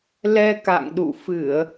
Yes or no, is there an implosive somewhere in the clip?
yes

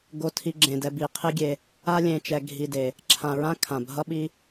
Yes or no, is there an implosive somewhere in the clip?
yes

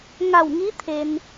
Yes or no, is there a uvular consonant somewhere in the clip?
no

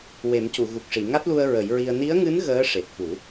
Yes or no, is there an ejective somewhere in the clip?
no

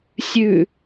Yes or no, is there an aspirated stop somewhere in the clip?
no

